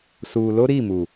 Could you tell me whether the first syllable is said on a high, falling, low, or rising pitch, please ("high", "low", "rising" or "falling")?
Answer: low